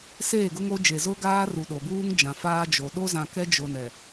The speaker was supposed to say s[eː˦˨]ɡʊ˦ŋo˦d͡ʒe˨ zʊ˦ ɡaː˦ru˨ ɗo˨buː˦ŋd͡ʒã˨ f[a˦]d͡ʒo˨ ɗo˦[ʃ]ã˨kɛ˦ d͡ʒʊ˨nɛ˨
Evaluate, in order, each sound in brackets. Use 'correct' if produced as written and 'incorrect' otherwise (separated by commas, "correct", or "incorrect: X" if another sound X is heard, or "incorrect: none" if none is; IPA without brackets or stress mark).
correct, incorrect: aː˦, incorrect: z